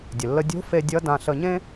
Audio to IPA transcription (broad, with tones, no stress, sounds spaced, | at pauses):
dʲ ə˩ lː ə˧ dʲ o̤˧˥ f e˧ dʲ ʌ˧˥ d ã˧ ɬ ə˧ ɲ ẽ˥